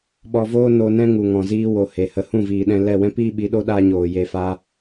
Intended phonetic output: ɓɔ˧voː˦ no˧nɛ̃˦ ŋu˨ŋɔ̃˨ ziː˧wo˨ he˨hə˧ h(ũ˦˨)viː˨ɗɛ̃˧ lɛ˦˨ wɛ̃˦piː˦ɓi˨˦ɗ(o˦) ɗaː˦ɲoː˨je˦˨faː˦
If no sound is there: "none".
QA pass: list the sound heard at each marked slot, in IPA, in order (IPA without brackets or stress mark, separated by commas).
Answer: ũ˦˨, o˦